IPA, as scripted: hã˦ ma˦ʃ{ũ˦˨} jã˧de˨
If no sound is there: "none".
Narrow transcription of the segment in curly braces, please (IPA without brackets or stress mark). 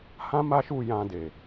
u˦˨